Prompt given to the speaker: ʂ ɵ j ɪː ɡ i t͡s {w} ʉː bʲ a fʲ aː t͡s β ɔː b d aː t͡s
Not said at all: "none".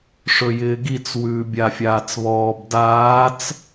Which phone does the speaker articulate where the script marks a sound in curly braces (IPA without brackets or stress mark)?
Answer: w